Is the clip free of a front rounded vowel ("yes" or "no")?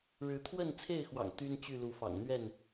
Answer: no